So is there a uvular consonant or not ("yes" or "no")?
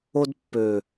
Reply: no